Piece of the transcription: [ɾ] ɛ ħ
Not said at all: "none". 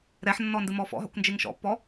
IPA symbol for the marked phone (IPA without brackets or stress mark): ɾ